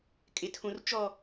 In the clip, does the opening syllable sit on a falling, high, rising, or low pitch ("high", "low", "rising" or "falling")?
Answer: low